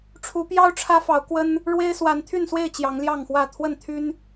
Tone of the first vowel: rising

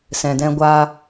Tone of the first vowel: low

